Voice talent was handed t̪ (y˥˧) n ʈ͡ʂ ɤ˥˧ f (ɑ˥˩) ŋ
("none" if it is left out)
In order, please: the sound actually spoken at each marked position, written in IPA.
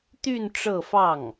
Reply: y˥˧, ɑ˥˩

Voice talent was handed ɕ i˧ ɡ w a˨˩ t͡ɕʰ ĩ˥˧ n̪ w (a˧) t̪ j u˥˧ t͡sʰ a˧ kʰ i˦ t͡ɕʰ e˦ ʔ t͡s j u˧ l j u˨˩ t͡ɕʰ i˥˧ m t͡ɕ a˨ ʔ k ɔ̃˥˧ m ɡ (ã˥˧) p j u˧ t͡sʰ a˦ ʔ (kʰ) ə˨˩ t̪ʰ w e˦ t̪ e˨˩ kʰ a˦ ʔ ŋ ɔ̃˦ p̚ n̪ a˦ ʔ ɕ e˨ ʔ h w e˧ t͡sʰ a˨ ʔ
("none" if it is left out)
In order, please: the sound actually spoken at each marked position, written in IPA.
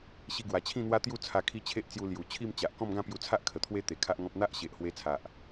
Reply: a˦, ã˥˧, kʰ

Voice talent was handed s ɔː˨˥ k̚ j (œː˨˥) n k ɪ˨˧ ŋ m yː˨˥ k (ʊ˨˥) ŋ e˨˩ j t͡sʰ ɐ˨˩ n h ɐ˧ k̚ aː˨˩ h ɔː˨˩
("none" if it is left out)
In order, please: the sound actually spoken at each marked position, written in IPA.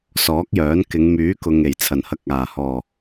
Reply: œː˨˥, ʊ˨

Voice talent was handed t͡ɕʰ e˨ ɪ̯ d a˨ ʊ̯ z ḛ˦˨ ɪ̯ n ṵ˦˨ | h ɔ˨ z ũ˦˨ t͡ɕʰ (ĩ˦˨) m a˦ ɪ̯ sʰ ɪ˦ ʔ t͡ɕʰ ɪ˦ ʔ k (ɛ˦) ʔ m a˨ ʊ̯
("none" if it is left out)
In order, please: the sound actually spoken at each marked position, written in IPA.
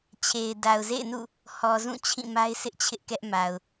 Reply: ĩ˦˨, ɛ˦

